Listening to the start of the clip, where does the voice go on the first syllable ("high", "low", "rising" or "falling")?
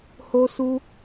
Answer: high